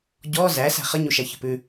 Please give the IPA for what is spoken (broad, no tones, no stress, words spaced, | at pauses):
ɟɔ zæ sæ̤χəɲu ʃæçə̤pʉ